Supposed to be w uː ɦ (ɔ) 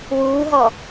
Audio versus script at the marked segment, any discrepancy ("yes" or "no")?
no